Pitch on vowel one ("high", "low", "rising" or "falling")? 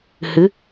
rising